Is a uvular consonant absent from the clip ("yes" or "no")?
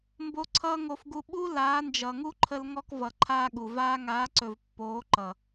yes